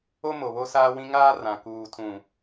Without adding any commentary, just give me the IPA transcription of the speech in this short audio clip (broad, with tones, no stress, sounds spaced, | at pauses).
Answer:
o˦ m o˨ β o˦ s aː˦ w ĩ˦ ŋ aː˦ r ã˨ k uː˨ tʰ ũ˨